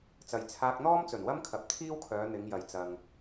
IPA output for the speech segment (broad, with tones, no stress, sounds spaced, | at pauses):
t͡s ɐ˨ j t͡sʰ aː˧ k̚ n̪ ɔː˥ m t͡s ɵ˨˩ n w ɐ˥ m kʰ ɐ˨ p̚ t̪ʰ iː˥ w kʰ œː˨˧ n̪ ɪ˨˧ ŋ j ɐ˨ j t͡s ɐ˨ ŋ